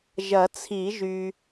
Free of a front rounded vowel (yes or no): no